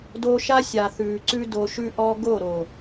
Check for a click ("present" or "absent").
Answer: present